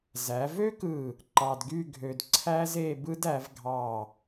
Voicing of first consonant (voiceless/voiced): voiced